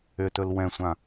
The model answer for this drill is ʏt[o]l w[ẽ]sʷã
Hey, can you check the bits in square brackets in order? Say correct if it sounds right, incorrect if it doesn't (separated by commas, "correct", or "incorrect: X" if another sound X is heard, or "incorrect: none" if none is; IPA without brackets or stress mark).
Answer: incorrect: ɵ, incorrect: ɛ̃